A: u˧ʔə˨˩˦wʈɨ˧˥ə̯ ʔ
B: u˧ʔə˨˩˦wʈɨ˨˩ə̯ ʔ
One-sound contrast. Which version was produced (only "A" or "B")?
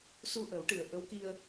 B